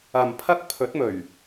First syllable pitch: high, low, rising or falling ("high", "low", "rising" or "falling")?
low